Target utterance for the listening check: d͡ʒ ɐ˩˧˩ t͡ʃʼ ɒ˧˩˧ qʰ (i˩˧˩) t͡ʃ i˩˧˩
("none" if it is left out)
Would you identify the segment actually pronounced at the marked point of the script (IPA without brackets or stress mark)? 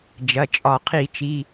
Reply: i˧˩˧